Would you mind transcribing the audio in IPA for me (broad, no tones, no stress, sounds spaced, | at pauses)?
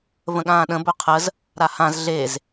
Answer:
v ə̃ ɠ ãː ɗ ə̃ b ɵ qʰ ə z | ɾ a h ã z ɮ e z